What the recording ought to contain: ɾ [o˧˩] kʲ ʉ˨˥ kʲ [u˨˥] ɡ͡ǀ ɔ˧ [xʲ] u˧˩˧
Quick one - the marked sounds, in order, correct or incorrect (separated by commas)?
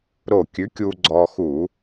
correct, incorrect, incorrect